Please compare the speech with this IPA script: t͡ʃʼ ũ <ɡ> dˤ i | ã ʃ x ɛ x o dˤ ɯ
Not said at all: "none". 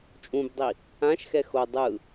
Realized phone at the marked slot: b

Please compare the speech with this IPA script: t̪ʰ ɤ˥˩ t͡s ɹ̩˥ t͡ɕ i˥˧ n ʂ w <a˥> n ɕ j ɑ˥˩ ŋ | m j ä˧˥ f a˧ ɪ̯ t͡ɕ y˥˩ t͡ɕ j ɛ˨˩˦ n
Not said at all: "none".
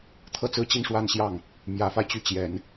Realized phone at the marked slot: a˥˧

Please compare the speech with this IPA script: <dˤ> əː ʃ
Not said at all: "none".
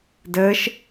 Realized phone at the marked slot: d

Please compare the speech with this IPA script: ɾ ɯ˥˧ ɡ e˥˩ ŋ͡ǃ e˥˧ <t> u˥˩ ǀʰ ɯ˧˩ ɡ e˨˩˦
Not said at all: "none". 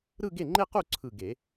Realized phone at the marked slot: q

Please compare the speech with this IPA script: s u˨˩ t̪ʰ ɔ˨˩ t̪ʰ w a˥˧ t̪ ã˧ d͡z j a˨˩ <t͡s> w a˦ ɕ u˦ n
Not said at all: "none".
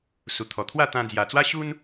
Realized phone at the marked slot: t͡s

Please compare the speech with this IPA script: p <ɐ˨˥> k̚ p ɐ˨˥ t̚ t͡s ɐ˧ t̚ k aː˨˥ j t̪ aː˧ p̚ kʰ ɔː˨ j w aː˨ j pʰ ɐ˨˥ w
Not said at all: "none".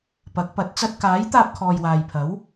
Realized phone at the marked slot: ɐ˨˥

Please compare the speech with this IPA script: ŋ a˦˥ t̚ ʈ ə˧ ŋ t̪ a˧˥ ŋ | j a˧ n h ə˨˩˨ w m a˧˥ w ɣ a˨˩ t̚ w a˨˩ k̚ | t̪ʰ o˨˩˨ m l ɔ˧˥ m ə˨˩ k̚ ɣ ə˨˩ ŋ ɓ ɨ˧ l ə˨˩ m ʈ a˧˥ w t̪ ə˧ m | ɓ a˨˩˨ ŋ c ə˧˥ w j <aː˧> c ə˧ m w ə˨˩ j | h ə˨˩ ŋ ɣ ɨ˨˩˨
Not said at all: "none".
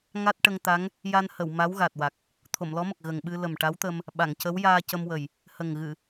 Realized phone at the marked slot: aː˧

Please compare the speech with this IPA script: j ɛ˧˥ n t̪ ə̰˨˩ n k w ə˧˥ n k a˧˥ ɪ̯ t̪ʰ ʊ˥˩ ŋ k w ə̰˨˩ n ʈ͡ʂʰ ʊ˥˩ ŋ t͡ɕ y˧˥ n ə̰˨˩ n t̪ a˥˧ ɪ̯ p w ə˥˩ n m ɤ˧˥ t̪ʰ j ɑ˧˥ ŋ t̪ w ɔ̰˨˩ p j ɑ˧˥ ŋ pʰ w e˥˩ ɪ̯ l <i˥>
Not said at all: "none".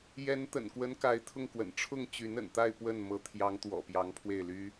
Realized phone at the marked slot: y˥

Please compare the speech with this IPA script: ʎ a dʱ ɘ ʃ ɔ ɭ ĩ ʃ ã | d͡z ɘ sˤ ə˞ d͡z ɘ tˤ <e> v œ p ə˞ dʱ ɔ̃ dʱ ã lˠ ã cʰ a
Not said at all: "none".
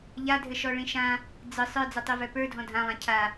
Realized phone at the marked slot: e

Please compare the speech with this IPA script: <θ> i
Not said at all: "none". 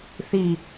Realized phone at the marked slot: θ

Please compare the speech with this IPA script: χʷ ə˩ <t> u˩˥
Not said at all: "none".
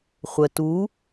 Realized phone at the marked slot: t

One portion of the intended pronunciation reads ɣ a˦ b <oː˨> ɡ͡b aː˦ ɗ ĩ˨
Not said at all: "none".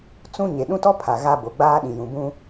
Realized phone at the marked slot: o˨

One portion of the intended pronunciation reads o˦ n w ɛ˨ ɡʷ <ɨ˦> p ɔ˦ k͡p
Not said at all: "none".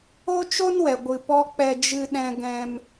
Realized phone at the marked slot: ɨ˧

